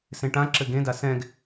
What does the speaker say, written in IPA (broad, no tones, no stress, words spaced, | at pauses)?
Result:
sẽʈã ǁɘɡẽda sɛ̃ɡ